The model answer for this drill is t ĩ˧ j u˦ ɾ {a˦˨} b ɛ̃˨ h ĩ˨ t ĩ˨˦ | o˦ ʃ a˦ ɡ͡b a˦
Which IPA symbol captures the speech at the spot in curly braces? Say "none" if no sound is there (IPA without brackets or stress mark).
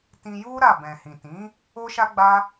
a˦˨